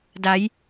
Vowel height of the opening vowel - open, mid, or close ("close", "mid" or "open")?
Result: open